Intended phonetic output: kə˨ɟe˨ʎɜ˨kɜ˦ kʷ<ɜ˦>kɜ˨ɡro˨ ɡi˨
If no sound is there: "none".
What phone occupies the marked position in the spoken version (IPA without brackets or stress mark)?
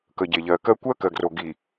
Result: ɜ˦